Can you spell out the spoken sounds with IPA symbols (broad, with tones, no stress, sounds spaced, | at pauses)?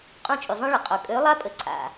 qʼ ũ˦˨ t͡ʃʼ y˨ zˤ õ˦ ɭ ə˨ qʼ o˨ kʼ ø˨˦ lˠ a˦ pʼ ə˨ ǀʰ a̰˨